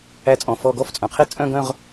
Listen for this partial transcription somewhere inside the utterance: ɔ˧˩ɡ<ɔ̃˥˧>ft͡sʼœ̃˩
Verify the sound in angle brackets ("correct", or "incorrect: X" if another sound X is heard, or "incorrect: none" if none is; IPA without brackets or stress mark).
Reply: incorrect: ɔ˥˧